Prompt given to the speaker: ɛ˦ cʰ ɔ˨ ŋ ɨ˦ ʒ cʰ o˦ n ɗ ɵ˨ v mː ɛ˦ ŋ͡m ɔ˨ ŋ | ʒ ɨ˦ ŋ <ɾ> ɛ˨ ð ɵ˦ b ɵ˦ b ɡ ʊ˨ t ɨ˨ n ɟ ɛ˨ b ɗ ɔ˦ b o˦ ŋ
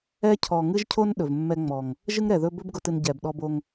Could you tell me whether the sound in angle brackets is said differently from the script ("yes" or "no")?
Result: no